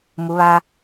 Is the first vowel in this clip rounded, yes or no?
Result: yes